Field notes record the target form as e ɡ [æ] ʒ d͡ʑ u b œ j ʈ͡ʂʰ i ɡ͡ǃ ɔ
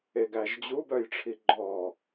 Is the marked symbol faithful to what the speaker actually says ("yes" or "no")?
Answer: yes